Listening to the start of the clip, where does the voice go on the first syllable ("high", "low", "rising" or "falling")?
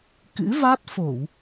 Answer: rising